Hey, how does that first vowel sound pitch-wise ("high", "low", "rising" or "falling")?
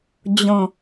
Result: low